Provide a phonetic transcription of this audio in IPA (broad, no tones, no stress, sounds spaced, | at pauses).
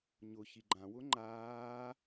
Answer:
ɲ ʊ ç i ɡ͡ǃ ã w ʊ ŋ͡ǃ aː